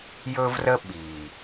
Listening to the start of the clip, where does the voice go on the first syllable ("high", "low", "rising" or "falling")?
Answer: high